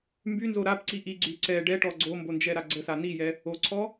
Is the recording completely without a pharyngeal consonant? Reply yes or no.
yes